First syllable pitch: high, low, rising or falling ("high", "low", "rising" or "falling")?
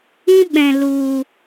high